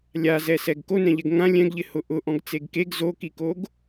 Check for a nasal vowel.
present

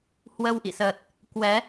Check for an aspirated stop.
absent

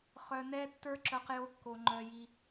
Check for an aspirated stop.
absent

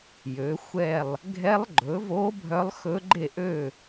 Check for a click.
present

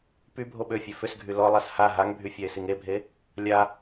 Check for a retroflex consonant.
absent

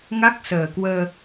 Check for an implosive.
absent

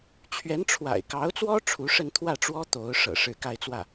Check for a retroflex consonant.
present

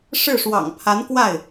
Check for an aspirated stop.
present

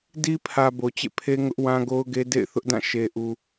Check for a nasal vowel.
present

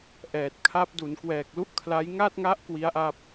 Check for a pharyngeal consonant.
absent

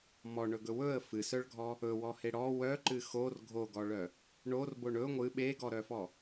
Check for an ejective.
absent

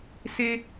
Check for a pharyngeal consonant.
absent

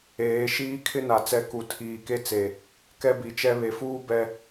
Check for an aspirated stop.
present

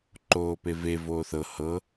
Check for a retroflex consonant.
absent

